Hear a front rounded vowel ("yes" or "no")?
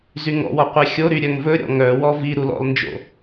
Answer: yes